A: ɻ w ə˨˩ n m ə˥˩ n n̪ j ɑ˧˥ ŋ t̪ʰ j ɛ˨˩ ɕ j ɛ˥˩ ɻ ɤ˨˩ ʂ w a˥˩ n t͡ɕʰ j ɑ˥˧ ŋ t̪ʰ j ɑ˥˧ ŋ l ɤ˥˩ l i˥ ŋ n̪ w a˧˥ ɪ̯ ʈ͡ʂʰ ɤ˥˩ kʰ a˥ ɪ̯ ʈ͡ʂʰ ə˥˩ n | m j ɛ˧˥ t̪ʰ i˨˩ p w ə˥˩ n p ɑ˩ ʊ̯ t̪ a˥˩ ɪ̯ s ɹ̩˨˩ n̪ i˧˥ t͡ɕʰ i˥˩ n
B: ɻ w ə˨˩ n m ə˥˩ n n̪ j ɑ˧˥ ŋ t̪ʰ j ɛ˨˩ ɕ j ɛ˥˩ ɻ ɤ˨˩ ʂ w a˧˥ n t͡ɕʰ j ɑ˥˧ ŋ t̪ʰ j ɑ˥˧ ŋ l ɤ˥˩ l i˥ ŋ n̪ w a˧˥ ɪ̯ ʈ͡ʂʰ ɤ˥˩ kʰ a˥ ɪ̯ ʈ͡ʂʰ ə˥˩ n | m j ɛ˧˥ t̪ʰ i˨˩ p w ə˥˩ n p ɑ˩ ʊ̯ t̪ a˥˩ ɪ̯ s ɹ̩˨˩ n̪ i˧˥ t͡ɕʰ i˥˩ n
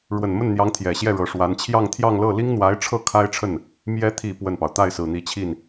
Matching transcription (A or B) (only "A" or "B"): B